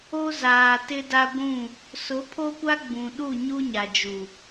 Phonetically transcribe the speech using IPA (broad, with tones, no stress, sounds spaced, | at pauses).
o˦ z aː˨ t ɪ˦ d a˦ ɡʷ ũ˦˨ | s ʊ˨˦ pʰ o˦ kʷ a˦ ɡ͡b ũ˨ ɗ u˦˨ ɲ u˦ ɲ a˨ d͡ʒ u˨